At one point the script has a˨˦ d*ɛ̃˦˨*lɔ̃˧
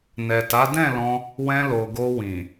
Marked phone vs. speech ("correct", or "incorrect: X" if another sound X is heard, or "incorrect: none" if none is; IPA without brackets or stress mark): correct